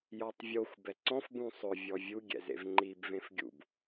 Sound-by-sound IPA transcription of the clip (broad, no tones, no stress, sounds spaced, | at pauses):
j ɔ tˤ vʲ o xʷ b ɛ ǀ ɔ̃ f b ũ sˤ ʊ vʲ ɔ vʲ u ɡʲ ɛ̰ z ḛ v ŋ͡ǃ i b v ẽ f ɡʲ ṵ b